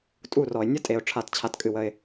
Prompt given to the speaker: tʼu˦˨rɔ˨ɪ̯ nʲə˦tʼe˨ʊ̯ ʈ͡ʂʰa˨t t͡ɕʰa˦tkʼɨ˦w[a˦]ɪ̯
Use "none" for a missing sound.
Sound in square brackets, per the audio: ə˦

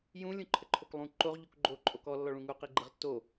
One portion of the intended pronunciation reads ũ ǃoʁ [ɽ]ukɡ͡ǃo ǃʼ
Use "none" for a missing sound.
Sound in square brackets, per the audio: ʎ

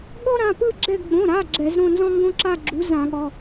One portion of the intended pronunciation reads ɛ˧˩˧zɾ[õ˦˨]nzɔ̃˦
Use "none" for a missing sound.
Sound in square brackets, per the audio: õ˦˨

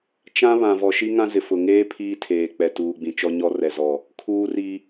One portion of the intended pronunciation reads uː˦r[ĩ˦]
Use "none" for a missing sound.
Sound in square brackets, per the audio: i˦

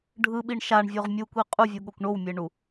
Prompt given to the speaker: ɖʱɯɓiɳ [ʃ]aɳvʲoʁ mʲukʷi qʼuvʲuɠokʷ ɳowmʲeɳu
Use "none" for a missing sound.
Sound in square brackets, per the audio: ʃ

